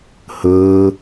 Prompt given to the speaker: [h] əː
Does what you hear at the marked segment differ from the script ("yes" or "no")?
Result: no